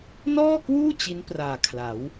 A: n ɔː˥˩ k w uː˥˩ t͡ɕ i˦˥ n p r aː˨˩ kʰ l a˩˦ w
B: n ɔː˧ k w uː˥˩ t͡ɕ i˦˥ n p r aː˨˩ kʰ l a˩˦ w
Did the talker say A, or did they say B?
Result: A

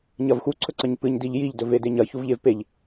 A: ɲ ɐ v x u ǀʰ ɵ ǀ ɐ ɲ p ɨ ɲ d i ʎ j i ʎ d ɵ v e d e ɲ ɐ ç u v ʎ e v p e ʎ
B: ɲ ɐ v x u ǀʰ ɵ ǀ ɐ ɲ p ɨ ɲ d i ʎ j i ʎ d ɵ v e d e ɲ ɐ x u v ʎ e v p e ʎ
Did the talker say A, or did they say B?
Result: A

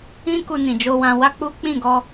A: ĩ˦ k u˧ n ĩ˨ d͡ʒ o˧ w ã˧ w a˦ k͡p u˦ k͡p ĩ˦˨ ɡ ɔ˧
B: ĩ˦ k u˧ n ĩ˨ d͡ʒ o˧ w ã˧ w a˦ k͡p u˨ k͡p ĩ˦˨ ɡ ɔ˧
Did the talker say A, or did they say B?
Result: A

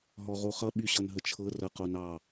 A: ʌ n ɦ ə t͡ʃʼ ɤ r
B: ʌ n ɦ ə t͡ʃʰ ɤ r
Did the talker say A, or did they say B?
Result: B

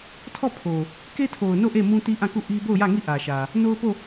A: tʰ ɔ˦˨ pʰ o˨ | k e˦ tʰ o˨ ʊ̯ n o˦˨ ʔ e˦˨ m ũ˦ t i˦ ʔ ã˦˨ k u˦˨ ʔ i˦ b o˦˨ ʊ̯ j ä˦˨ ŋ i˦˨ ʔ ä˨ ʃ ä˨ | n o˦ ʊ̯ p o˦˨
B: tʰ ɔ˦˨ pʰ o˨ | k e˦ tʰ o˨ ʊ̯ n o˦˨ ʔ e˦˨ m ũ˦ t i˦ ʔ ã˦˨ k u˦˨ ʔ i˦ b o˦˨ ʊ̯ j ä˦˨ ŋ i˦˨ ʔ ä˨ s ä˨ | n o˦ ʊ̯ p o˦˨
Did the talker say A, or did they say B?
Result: A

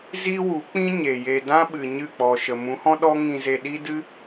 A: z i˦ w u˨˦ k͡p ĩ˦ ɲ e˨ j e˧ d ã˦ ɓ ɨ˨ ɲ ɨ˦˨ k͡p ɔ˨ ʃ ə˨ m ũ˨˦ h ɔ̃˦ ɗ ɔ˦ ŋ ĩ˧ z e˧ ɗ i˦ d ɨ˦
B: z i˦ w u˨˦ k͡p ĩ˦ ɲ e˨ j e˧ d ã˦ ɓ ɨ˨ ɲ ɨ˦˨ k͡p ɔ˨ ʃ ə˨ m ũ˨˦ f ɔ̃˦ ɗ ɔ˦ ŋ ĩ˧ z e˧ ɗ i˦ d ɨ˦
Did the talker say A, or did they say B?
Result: A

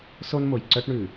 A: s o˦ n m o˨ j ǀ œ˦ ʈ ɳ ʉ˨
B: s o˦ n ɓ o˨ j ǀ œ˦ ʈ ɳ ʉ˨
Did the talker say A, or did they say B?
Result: A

